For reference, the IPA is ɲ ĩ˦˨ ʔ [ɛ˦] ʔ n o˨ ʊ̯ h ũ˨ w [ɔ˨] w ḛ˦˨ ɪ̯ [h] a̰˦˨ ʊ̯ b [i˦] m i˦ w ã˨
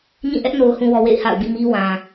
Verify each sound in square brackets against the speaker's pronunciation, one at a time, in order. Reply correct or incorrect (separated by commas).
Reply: correct, correct, correct, incorrect